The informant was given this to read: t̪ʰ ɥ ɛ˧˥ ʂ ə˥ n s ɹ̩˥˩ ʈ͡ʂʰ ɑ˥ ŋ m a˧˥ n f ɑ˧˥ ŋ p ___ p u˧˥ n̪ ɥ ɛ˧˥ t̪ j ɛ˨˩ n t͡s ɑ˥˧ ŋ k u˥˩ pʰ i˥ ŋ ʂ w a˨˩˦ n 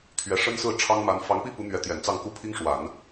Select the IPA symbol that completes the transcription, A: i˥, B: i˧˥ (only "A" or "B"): A